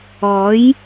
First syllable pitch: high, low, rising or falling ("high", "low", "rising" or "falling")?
rising